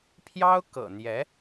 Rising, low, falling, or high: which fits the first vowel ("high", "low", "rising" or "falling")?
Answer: high